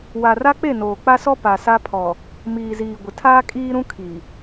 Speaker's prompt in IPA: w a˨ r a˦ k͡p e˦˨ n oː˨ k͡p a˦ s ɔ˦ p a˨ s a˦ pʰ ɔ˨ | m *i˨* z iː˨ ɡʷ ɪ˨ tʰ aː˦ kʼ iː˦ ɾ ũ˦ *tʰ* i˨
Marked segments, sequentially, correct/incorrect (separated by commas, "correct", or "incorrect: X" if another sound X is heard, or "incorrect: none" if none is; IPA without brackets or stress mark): incorrect: iː˨, incorrect: kʰ